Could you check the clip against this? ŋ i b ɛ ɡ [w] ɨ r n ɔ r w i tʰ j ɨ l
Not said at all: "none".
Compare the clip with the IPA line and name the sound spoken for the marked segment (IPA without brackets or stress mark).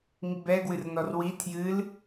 w